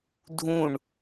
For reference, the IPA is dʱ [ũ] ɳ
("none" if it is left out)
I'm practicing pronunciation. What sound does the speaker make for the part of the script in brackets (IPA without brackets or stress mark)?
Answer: ũ